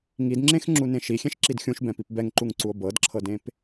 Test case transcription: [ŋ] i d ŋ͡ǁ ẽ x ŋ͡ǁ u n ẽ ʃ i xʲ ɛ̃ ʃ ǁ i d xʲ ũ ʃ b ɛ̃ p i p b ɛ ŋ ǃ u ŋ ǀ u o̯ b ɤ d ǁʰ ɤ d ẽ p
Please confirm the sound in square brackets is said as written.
yes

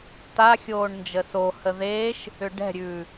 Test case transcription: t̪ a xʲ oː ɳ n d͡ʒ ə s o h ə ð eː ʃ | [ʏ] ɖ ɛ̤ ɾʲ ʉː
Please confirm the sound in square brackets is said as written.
yes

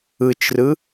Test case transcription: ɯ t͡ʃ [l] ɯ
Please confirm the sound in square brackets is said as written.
no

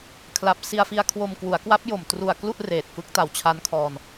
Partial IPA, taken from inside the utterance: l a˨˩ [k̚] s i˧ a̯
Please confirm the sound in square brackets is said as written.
no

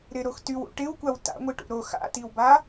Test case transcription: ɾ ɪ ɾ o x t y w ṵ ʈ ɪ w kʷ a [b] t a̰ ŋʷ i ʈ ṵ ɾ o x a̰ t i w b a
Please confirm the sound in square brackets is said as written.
no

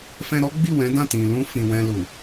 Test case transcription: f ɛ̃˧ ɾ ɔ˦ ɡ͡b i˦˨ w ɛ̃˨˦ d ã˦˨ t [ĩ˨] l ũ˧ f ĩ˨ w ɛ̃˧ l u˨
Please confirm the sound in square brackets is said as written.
yes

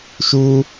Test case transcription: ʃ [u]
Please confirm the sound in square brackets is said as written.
yes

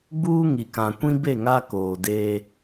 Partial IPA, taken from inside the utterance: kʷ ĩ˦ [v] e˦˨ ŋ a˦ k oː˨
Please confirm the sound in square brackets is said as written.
no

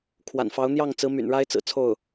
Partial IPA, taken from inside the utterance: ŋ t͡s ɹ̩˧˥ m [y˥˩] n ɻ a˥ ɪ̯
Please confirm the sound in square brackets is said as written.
no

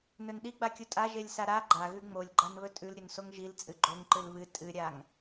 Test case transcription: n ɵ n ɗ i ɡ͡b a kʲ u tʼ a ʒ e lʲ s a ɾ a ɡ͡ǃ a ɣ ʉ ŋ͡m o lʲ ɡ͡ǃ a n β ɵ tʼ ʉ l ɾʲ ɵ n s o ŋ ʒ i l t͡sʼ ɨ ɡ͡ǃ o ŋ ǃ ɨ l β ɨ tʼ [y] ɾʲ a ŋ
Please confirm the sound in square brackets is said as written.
no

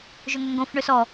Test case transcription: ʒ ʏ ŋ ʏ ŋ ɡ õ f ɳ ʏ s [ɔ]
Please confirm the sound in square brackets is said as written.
yes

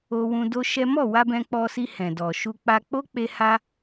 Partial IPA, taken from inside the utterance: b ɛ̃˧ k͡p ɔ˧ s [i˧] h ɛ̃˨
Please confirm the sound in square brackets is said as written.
yes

